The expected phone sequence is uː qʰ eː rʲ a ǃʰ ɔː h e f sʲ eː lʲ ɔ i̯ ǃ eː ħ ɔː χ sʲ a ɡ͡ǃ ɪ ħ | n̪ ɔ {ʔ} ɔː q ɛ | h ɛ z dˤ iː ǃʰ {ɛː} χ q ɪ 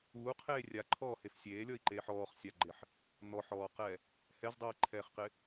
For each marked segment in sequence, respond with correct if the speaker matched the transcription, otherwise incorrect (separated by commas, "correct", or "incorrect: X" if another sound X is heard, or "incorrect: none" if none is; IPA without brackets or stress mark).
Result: incorrect: ħ, correct